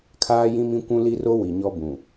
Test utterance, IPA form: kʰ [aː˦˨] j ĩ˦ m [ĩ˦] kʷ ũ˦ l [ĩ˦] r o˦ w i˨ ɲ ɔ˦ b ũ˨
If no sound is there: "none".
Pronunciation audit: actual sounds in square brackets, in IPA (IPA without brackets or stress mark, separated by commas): aː˦, ĩ˦, i˦